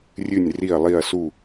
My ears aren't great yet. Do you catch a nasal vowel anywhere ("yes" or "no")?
no